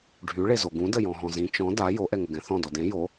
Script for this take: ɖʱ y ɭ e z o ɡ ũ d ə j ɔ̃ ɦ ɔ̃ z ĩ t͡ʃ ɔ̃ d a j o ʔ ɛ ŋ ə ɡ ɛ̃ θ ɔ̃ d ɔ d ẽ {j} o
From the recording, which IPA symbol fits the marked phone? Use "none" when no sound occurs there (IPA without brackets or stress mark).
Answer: j